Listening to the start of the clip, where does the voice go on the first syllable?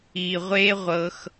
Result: low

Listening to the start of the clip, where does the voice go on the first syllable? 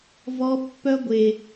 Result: high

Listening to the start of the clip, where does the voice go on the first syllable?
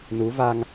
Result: rising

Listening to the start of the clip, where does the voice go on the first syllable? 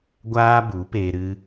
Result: high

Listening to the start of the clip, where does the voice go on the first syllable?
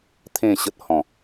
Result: falling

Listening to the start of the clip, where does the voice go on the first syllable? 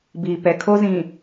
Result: low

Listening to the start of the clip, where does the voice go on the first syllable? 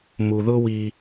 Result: low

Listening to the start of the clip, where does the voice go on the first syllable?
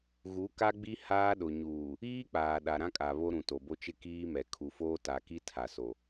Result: rising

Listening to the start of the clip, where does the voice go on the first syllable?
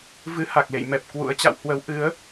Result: rising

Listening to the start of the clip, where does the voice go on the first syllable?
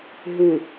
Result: low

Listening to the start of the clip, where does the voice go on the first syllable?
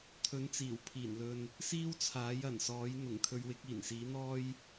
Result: rising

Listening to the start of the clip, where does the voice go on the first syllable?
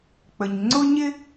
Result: low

